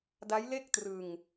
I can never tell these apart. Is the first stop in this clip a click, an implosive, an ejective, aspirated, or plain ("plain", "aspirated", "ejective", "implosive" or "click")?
plain